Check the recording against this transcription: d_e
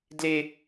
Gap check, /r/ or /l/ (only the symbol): l